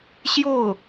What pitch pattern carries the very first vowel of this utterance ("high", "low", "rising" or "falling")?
falling